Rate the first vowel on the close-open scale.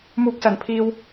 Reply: close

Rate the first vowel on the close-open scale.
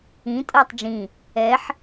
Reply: close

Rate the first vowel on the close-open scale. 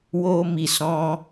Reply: mid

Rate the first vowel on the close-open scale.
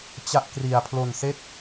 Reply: open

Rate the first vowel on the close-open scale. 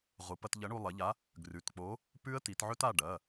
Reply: close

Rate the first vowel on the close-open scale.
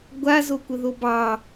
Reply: open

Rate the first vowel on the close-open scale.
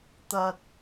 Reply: open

